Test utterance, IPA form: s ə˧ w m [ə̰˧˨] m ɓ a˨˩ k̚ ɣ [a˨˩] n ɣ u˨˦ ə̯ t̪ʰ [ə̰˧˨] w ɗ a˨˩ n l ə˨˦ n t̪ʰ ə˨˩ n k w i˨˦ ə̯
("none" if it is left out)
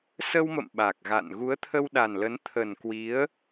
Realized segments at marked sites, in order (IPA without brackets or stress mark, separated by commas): ə̰˧˨, a̰˧˨, ə˧